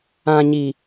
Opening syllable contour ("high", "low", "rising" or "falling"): low